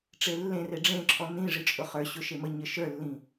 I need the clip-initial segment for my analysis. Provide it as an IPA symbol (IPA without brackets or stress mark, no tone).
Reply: ʈ͡ʂ